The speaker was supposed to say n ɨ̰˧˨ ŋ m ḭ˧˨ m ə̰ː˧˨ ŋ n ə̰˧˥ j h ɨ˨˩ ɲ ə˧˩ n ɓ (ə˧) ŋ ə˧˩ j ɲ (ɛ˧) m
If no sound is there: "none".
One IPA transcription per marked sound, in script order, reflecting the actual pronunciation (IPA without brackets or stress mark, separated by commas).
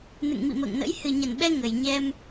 ɛ˧, ɛ˧